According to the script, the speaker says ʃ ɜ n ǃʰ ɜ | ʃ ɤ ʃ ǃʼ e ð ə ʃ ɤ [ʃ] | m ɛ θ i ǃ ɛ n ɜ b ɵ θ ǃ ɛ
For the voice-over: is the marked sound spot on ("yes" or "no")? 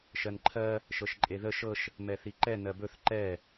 yes